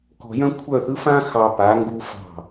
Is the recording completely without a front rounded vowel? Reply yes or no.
no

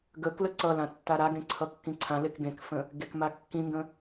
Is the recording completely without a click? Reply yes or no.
no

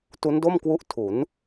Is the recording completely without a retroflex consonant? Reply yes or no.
yes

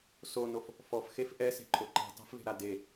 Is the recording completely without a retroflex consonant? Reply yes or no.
yes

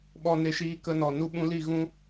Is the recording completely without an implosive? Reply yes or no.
no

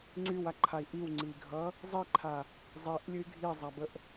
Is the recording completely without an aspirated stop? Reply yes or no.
no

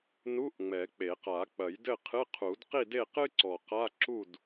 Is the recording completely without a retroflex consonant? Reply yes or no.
yes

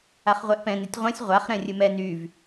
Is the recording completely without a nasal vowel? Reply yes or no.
no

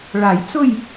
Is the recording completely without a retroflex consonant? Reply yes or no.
no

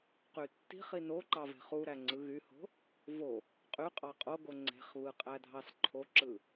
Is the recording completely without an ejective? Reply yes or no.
no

